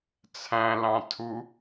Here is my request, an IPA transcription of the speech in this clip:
t͡sʰæ̃lɑ̃tʰu

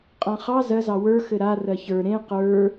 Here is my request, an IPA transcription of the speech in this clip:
qʼãχɑ zɜzɑ wə˞ xɘɾa rɜçə˞ ɾẽ qə˞

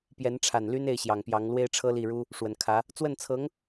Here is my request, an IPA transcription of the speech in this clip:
pjɛ˧˥nʈ͡ʂʰa˨˩n ly˥ne˥˩ɪ̯ɕjɑ˨˩ŋpjɑ˧˥ŋ lwe˥ɪ̯ʈ͡ʂʰɤ˥li˥˩ɻu˥ | ʂwə˨˩nkʰä˧˥ | t͡swə˥˩nt͡sʰɤ˧˥ŋ

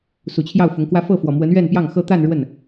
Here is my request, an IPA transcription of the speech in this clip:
su˨˩t͡ɕʰjɑ˥˩ʊ̯fʊ˧˥ŋkwä˥ fɤ˥˩fwɔ˨˩mwə˧˥n ɥɛ˥˧npjɑ˥˩ŋxɤ˥ t̪a˥˧n ɻwə˥˩n

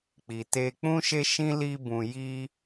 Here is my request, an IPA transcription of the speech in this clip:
k͡pi˨te˧ k͡pũ˦ʃe˦ʃĩ˦ li˦bũ˧ ji˦

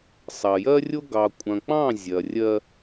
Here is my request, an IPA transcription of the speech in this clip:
sˤɐ˨jɜ˦rʲo˦ ɡɑ˨kʷʼɐ̃˨k͡pɑ̃˦˨ zʲɐ˨rʲɜ˦

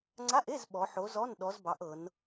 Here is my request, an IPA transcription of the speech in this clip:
ŋ͡ǀa˧˥˧ʔe˧˥˧z ɓɔ˨˦ ħo˨˦ zɔ˧˥˧n ɗɔ˨˦zbɑ˨˦ʔ ɤ˨˦n

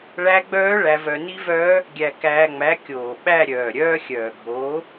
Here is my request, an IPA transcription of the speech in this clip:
ɭæ˦˥ɡ͡bœː˦˥ ɭæ˧vœ˧ni˦˥vœː˦˥ | ɡʲæ˧kæː˧ŋ͡mæ˨˥ kʲoː˨˩ɓæ˥˧ɾʲœː˨˩ ɾʲœː˦˥xʲœː˨˩ ɡʱoː˨˥

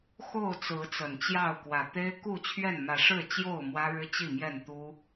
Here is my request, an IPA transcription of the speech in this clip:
xo˥˨ʊ̯t͡sɹ̩˨˦ t͡sə˨˩nt͡ɕjɑ˥˨ʊ̯ kwä˨˩t̪e˦ɪ̯ku˥˨t͡ɕʰɥɛ˥˨n mä˨˦ʂɻ̩˥˨t͡ɕjo˥˨ʊ̯ mwä˦ɻɻ̩˦t͡ɕi˥˨ mjɛ˥˨nt̪u˦

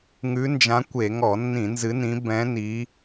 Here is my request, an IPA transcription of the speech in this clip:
ŋʉ˧˥nd͡ʒã˧˥kʷe˧˩˧ ŋɔ˧˩˧nːĩ˧˩˧ nzɨ˧˥nĩ˧˥ bɛ̃˧˥ni˧˥

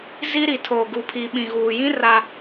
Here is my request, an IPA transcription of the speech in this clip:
zi˦ɾi˨ tʰo˨ ɡu˨pʰi˨ ɓĩ˨ɣuː˨jĩ˦ ra˦

